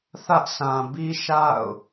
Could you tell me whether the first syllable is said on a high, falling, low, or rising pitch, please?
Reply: high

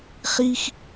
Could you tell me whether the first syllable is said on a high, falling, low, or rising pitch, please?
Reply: high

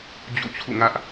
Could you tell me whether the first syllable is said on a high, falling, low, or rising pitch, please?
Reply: falling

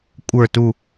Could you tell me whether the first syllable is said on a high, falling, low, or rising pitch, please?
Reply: falling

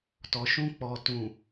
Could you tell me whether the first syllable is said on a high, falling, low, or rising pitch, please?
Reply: low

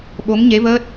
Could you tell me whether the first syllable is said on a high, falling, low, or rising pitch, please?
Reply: rising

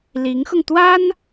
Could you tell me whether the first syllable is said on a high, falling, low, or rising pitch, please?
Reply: rising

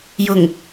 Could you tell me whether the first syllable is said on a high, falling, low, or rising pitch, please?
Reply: low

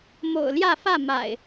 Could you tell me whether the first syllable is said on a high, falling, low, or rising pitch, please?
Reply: low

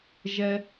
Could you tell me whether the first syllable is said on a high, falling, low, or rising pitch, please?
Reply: high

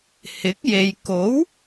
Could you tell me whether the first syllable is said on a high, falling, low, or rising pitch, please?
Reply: rising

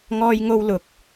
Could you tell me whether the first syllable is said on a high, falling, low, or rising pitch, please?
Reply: high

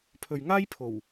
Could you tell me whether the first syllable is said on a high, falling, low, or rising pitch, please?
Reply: low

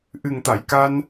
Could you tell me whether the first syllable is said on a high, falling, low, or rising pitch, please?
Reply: low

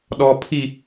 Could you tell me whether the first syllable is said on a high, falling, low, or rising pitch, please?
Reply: low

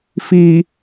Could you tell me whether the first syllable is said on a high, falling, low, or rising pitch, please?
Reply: low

